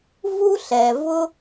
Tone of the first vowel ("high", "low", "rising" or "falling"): high